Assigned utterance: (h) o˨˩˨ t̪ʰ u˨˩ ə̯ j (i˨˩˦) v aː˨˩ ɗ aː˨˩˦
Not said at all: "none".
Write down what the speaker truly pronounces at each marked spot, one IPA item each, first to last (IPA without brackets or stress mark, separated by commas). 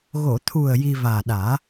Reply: ɣ, i˧